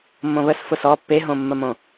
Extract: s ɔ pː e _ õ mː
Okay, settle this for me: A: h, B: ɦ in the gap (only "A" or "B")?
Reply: B